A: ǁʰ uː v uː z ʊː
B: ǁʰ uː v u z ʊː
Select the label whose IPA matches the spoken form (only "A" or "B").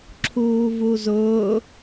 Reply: B